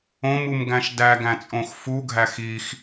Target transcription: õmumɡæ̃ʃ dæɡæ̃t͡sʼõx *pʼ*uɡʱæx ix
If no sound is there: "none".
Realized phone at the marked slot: f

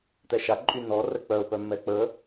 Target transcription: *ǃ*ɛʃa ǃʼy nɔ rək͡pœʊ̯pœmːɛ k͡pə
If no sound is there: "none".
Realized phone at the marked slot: t̪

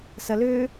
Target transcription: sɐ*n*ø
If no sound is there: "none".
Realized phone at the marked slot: l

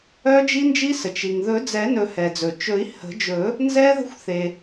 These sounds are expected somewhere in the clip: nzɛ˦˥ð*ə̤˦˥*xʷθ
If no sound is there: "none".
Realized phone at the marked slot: ə̤˦˥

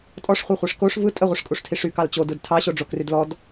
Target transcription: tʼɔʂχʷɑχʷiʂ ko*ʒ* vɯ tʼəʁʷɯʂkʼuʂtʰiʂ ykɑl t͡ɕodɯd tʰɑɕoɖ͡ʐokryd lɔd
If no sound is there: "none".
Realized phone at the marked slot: ʂ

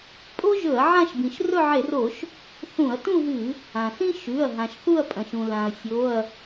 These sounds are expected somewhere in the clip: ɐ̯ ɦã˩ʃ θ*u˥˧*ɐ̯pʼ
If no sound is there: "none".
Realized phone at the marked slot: u˥˧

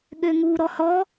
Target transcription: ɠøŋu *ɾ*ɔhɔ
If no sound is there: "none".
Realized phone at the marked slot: ɾ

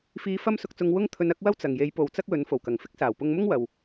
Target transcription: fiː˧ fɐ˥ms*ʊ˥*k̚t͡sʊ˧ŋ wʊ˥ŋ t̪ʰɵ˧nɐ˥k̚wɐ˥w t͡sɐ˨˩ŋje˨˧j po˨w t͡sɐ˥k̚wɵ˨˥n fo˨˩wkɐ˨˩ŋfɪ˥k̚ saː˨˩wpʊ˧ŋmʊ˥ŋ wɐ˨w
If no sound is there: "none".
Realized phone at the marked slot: ʊ˧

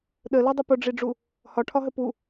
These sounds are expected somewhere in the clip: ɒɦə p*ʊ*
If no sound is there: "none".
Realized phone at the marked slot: u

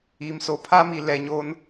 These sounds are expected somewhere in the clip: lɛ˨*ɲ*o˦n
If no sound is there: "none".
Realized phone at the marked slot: ɲ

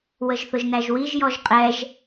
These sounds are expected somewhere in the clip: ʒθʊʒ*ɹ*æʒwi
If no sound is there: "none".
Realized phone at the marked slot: n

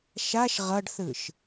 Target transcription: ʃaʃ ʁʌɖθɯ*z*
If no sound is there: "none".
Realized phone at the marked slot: ʃ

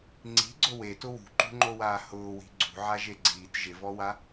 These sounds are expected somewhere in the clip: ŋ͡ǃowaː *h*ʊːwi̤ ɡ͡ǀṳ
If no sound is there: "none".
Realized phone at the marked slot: h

